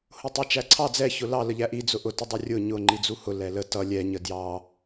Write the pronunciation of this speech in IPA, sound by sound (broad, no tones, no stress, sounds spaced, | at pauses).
h ʊ tˤ æ t͡ʃ æ ǀʰ ɑ d͡z ɛ ç ʊ l ɑ l ə ʎ æ ʔ i d͡z ʊ ʔ ʊ t ə dˤ ʌ rʲ ʊ ɲ ʊ ŋ͡ǃ i d͡z u h ʊ l ɛ l ə t ʌ lʲ ɛ ɲ ə d j ɑ